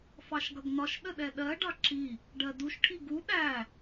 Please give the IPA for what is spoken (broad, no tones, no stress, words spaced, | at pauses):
fɑʃɡʌɡnɒʃ ɗəɗɛɗɜ ɖɑǁi | ɖɜduʃ ʈʰiɡu ɗæ